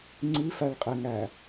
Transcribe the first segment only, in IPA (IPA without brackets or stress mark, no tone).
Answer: ŋ͡ǀ